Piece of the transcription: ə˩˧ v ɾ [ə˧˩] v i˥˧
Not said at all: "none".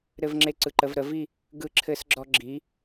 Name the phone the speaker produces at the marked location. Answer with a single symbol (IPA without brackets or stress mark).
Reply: ə˩˧